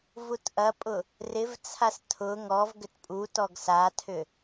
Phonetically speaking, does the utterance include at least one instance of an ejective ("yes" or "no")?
yes